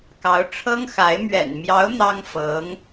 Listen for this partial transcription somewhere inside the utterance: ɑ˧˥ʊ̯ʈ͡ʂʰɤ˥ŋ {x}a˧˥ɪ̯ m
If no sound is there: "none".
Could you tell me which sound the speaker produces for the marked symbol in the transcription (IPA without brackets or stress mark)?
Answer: x